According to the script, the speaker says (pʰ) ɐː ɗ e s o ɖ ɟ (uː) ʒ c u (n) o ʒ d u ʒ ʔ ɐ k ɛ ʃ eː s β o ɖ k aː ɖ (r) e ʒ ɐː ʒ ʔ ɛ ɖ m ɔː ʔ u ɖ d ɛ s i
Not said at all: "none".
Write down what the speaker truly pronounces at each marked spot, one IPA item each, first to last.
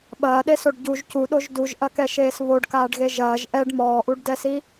ɓ, u, ɗ, ɣ

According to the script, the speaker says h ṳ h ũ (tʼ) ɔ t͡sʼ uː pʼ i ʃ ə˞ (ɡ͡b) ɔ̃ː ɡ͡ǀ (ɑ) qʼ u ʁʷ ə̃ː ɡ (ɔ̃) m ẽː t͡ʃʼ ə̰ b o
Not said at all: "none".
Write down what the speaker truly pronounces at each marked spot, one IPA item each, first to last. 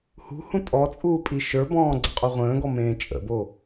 tʼ, b, ə, ɔ

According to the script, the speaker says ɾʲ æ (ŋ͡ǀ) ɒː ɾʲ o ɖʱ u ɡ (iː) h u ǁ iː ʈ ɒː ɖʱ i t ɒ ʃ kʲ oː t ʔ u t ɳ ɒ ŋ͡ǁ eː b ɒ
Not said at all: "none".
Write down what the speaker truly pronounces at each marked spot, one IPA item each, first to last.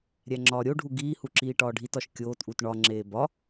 ŋ͡ǁ, iː

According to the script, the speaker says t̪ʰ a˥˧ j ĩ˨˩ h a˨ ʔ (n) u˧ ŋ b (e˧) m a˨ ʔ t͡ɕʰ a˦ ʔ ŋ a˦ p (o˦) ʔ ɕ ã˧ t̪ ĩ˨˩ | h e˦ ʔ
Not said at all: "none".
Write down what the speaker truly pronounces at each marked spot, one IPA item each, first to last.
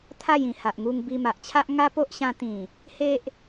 ŋ, i˧, o˦

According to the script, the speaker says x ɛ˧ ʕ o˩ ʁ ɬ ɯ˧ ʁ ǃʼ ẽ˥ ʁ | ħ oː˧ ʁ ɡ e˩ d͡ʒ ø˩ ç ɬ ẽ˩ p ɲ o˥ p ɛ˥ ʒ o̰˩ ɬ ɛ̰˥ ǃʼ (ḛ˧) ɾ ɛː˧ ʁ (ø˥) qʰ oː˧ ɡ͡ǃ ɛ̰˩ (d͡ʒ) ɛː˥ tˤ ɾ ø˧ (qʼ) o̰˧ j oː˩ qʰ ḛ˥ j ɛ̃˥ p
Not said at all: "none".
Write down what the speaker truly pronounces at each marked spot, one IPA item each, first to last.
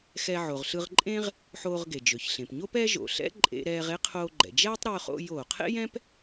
ḛ˧, e˥, d͡ʒ, χ

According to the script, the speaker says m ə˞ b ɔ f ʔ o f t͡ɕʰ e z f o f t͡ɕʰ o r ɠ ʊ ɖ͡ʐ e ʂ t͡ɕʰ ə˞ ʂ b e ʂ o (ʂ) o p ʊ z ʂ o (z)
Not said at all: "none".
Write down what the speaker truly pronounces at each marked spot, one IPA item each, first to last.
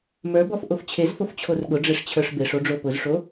ɖ͡ʐ, none

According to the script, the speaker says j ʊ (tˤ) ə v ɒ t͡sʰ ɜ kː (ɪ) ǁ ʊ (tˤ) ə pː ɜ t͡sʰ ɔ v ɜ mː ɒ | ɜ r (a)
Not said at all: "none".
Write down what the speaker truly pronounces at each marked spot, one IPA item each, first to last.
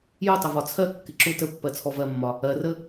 tˤ, ɪ, t, ə

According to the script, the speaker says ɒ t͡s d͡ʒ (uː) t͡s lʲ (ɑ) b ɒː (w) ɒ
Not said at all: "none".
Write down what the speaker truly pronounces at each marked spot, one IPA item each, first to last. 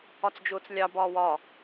ʊː, ɑ, w

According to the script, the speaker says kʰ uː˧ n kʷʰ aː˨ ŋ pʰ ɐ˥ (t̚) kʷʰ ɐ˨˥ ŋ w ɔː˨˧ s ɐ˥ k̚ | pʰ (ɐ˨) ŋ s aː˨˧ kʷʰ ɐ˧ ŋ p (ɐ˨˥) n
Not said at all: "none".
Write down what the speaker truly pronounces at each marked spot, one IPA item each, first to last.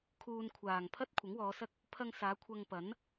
t̚, ɐ˧, ɐ˨˥

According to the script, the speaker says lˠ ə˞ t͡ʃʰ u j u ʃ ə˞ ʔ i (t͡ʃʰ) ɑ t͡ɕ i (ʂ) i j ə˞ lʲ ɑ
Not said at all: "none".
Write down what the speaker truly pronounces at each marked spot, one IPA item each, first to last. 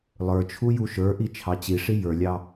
t͡ʃʰ, ʂ

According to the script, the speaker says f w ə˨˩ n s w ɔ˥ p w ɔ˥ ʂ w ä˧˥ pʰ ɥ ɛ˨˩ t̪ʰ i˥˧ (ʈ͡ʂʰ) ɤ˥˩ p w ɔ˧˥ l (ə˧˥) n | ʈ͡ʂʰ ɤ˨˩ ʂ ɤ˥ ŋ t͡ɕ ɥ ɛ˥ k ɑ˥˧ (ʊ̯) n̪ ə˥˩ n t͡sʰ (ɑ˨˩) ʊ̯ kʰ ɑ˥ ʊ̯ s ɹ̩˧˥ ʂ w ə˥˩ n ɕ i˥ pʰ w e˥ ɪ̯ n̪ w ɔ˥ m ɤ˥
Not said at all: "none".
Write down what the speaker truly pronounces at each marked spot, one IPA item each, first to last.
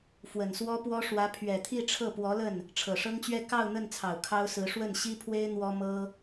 ʈ͡ʂʰ, ə˥˩, ʊ̯, ɑ˨˩

